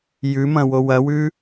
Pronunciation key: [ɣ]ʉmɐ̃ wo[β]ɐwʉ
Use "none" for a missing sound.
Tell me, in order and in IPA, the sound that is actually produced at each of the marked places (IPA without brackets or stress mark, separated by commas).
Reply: j, w